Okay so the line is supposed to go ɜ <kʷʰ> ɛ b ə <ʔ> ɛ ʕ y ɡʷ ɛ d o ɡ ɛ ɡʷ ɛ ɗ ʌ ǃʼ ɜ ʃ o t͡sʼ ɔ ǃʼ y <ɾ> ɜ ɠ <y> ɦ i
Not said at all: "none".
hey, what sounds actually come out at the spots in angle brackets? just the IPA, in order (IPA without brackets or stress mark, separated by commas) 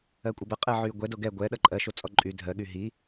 kʷʼ, qʼ, dʱ, y